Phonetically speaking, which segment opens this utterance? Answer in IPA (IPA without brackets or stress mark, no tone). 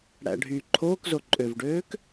ɽ